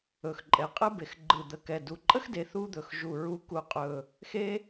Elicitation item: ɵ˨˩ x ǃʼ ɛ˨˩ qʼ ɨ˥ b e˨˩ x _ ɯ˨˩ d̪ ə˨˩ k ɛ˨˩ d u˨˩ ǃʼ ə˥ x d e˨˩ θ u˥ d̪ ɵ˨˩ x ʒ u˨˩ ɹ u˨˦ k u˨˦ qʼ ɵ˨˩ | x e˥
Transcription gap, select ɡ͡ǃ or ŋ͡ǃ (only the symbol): ɡ͡ǃ